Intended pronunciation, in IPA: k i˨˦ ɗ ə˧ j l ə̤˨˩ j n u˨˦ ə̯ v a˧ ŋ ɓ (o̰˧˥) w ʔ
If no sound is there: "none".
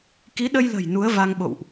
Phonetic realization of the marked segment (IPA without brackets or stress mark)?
o̰˧˨